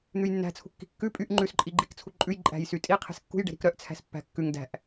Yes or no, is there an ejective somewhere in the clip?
yes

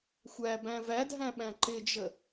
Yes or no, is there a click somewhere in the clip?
yes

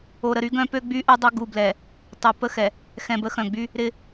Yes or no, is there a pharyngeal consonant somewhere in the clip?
no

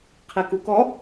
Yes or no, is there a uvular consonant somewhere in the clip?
yes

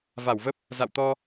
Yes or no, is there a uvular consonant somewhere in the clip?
no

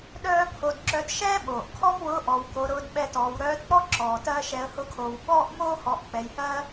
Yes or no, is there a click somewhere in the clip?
yes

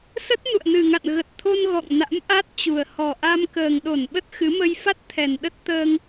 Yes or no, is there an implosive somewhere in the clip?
yes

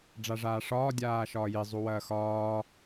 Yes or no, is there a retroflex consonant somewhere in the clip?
yes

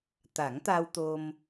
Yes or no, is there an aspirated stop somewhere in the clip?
no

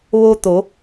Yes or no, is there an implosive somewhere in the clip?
no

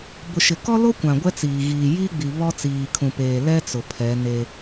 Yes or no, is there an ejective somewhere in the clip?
no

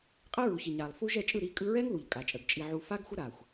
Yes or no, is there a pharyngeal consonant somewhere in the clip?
yes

